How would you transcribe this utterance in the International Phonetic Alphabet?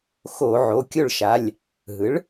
xoː˧˩˧ʕo˩˧˩kʲo˥˩ɭʃa˩˧˩lʲ | ɦɯ˩˥ɭ

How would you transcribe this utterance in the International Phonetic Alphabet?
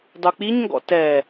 dˤuk͡piɲŋɡɔ̰ tɛ

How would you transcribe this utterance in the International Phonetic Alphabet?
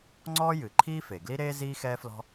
ŋ͡ǀɔː˥jɨ˩ǃʰiː˥ fe˩ɡli˥ɾeː˥ ziː˥xɛː˥flɔ̤˥

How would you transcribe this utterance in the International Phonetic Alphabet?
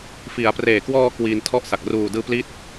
fi˩˦a̯preː˨˩kwɔː˧ kwiː˧ntʰɔ˥˩ʔsa˨˩k̚ ruː˨˩dɯː˧ pli˥˩t̚

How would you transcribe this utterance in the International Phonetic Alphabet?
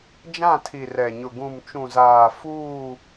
d͡ʒã˦˨tʰi˨rɛ˨ɲʊ˨ ɡũ˨mt͡ʃũ˨zaː˨ fuː˦˨

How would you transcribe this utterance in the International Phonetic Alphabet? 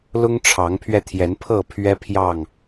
lʊ˦ŋʈ͡ʂʰɑ˨˦ŋpʰɥɛ˧t̪ʰjɛ˨˦n pʰɤ˥˨ pʰɥɛ˦pʰjɑ˥˨ŋ

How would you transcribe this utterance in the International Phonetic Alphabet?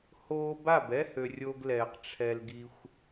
hoː˧ba˦˨bɛ˦ hø˨ rʲo˧ɡlɛː˨q ʈ͡ʂʰɛ˧l ɡi˧xʷ

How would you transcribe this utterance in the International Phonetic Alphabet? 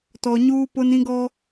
tɔ˨ ɲuː˦pʊ˦n ĩ˦ɡɔ˦

